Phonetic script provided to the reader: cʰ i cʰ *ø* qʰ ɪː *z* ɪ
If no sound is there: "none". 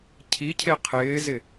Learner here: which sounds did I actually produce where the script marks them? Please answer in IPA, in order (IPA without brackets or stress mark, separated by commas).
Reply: e, z